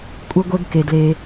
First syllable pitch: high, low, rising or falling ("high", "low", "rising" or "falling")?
high